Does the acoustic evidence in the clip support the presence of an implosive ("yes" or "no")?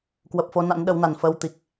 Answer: yes